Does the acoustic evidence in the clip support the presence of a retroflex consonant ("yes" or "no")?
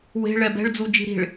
yes